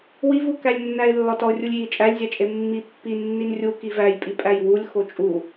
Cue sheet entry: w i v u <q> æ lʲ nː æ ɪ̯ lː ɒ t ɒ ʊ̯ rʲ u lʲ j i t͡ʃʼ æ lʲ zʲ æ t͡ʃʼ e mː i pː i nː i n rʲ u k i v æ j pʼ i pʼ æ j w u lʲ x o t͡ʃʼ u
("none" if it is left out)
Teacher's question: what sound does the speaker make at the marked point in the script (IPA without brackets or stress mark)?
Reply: k